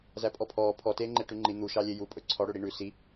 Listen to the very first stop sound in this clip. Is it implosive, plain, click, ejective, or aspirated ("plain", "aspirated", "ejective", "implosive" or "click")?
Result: ejective